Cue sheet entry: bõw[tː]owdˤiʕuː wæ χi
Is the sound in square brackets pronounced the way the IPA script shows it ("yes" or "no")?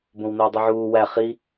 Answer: no